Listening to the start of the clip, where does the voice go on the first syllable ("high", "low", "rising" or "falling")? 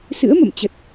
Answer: rising